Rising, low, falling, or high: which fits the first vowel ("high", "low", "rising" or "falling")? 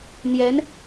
rising